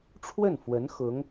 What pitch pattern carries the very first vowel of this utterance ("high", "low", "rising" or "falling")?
falling